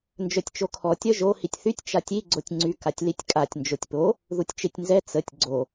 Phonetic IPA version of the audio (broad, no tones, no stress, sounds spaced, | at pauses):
n d͡ʒ œ tʲ t͡ʃ o kʰ ɔ tʲ œ ʒ o h i tʲ θ y tʲ t͡ʃ a tʲ i ɡ͡ǀ o tʲ ŋ͡ǀ y k a tʲ l i tʲ kʼ a tʲ n d͡ʒ o tʲ p o | ð u tʲ t͡ʃ e tʲ n z ɛ t͡s ə tʲ ɡ͡ǀ o